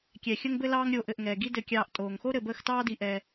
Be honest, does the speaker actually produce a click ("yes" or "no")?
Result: no